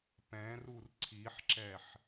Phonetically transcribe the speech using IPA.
p ɛ̃ r u r ǀʰ i ħ ǁ ɛ ħ

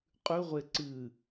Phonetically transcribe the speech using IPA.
qʼ ʉ ʁʷ e ǀ ɨ

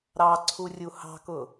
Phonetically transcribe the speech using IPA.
ɾ ɑ ǀʰ u rʲ u h ɑ̤ k ʊ

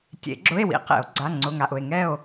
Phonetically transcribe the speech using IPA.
tʲ ḛ˨˩˦ ɡ͡ǁ ʊ˧˥˧ e̯ w ḭ˨˩˦ q ḛ˨˩˦ o̯ ɡ͡ǀ a˧˥˧ ŋ͡ǀ ʊ˧˥˧ ŋ a˧˥˧ ʔ ʊ˥˧ e̯ ŋ ɛ˥˧ o̯

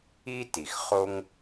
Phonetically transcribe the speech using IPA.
i˥ t i˩ x χ o˥ ŋ

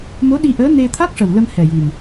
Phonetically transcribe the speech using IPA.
m o˧˥ ɗ i˧ ʔ əː˧˥ n e˧ t̪ʰ a˦˥ k̚ ʂ ə˨˩ w l ə˧ m h ɛ˨˩ j i˨˩ m

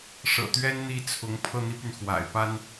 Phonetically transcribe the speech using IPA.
ʂ ɤ̰˨˩ t̪ ɥ ɛ˥ n n̪ i˥˩ t͡sʰ ʊ˧˥ ŋ pʰ ɤ˥˩ n̪ i˥ p y˨ n x w a̰˨˩ ɪ̯ p a˥ n

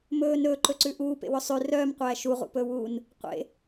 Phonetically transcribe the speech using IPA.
m ɵː n ɵː ǃ ɵ ǀ ʉ ʔ uː p ḛ w ɵ sˤ ʉ r œː m qʷ æː ʃ u ʁ ṵ p ɵː w uː n | qʷ ḛ

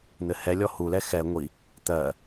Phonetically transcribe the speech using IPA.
n̪ ɘ h ɛ lʲ ɔ h u l ɛ x ɛ ŋʷ i | t̪ ɜ

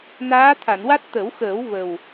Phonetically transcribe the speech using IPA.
n aː˧˥ t̪ʰ a˨˩˨ n w a˦˥ t̚ t̪ ə˨˩˦ w x əː˨˩˦ w v ə˨˩ w

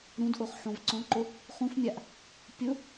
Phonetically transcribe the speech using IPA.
ɾ ũ d ʔ o χ ħ õ v ǀ ɔ̃ ǃ ʊ | χ ũ f mʲ a ʔ | pʲ ʊ

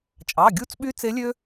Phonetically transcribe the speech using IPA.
t͡ʃʼ ɑ˩˧˩ ɡʲ u˧˥ t͡s ɓ y˧˥ t͡s e˧˥ lʲ ø˥

